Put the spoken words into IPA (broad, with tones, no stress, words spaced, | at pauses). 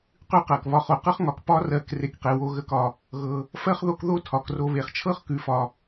qʉ˦qɜ˩k βɒ˨χo˩ qɤ˥χŋɒ˨k pɒ˦rɜ˨k re˨kqe˩wo˨ ɣə˦kɒ˨ | ɣɤ˨ | fɜ˥χðo˦k ðo˦ tʰɒ˩k ro˨βe˩χt͡ʃʰɤ˦χ kʉ˨fɒ˨